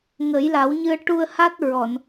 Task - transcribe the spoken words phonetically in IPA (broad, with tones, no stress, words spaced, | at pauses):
ŋə˨˩˦jla˨˩˦wɲɨ˧ə̯ ʈu˧ə̯ha˦˥t̚ ɹɔ˨˩˨n